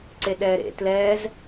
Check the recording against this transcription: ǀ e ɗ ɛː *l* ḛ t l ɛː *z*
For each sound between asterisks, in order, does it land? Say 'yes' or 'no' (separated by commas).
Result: no, yes